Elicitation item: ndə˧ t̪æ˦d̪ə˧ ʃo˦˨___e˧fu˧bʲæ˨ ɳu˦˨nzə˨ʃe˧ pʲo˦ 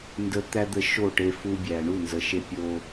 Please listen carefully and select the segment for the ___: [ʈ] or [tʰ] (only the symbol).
ʈ